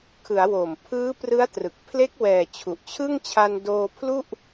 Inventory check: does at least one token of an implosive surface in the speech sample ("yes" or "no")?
no